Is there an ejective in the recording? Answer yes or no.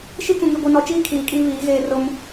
yes